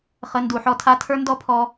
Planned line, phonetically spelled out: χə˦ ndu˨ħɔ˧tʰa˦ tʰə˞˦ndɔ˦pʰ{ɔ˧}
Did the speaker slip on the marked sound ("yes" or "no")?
no